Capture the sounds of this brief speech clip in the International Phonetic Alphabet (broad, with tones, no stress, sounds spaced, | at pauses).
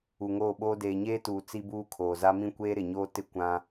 u˨ ŋ oː˦˨ ɓ oː˦ d eː˨ ɲ eː˦ t uː˨ t͡s i˦ b uː˦ kʰ oː˨ z a˦ m ĩ˦ kʷ eː˦ ɾ ɪ˨ ɲ oː˦ t ɪ˦ kʷ ã˦